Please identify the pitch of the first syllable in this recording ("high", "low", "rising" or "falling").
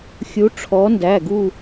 rising